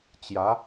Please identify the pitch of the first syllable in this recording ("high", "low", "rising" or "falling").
rising